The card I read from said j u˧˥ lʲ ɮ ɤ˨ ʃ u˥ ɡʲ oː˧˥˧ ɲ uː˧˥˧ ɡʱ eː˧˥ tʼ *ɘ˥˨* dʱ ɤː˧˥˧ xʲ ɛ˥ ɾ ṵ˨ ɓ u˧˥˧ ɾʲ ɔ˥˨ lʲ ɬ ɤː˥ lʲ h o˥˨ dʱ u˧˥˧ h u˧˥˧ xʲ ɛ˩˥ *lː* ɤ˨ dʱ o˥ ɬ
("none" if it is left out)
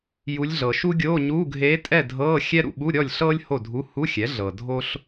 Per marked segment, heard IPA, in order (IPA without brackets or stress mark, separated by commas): ɛ˥˨, ɮ